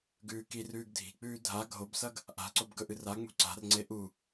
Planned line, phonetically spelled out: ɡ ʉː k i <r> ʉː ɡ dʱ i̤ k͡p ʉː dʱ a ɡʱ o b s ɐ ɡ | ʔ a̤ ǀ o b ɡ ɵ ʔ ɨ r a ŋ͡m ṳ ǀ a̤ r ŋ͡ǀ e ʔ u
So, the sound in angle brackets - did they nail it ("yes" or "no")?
yes